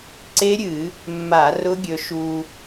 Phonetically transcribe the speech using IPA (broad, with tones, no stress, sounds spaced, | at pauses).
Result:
ǀ e˦˥ ɾʲ ɨ˧˩˧ | mː a˧˩˧ r ʊ˦˥ ɡʲ ɵ˧ ʃ u˧